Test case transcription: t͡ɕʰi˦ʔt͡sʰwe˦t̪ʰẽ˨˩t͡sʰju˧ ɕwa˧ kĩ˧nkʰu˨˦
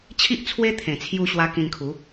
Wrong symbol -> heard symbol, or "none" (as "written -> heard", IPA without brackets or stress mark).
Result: none